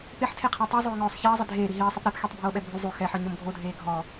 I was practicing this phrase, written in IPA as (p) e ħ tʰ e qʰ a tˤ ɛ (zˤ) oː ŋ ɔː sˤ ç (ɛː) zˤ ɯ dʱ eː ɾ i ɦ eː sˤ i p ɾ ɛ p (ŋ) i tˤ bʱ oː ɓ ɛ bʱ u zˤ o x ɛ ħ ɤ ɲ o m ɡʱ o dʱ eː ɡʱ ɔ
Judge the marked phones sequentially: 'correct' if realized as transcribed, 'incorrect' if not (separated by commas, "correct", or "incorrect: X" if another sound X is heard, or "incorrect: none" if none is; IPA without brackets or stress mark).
correct, correct, correct, incorrect: x